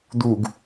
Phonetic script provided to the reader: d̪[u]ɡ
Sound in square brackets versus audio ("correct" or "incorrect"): correct